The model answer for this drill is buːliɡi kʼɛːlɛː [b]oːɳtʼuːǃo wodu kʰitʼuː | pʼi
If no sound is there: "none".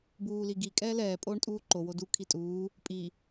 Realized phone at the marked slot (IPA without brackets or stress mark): pʼ